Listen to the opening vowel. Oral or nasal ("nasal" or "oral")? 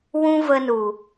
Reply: nasal